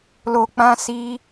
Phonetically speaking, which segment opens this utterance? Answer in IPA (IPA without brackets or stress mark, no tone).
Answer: l